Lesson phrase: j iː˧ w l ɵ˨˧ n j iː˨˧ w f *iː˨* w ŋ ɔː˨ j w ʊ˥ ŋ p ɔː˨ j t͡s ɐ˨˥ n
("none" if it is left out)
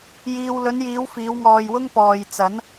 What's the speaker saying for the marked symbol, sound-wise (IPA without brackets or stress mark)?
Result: iː˨˧